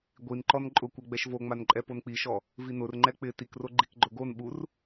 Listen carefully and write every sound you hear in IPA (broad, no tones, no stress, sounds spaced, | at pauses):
ɡʷ i n ǃ ɔ n ǃʼ ʊ kʷ ɛ ɡ͡b ɛ ʃ v o ŋ͡m a n ǃʼ ɛ p o n k͡p i ʃ ɔ | v i n ʊ r ŋ͡ǃ ɛ k͡p ɪ t i k r o ɡ͡ǃ i k ɡ͡ǃ ʊ ɡ o n ɓ u r